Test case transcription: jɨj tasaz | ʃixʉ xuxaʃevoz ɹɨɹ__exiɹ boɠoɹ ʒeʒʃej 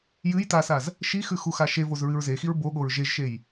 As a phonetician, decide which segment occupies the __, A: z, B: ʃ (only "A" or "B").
A